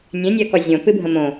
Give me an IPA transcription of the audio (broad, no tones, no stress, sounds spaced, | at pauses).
nʲ ɛ̃ nʲ ɜ k ɔ zʲ õ p ɨ bʱ ə̃ m õ